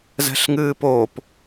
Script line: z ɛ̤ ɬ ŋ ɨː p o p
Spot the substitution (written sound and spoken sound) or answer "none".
none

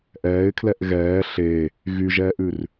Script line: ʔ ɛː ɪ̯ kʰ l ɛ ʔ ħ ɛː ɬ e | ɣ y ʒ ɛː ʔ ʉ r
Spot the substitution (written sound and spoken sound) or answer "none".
ħ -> ɣ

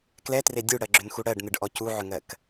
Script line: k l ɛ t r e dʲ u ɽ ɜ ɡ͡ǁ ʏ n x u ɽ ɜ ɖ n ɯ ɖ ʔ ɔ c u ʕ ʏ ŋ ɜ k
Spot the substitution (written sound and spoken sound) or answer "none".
none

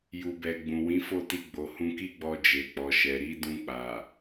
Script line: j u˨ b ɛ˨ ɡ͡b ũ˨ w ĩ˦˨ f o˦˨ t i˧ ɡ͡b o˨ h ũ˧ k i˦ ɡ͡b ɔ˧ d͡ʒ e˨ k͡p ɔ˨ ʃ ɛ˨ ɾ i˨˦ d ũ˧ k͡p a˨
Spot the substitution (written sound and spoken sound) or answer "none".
ĩ˦˨ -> ĩ˨˦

